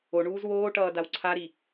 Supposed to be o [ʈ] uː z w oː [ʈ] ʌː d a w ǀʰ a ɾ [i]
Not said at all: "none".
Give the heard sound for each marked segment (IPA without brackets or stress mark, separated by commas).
ɳ, ʈ, i